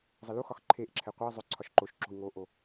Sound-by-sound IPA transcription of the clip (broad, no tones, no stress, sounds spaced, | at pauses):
zˤ ɘ l u x ɒ x ǃʰ e ʔ ǁʰ ɛ qʷ ɛ i̯ zˤ ʏ ǀʰ ɒ ʃ ǃ o ʃ ǁ o̤ i̯ ŋ o ʔ o